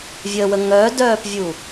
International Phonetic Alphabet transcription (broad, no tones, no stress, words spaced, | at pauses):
vʲəwə ŋœːdœːpvʲu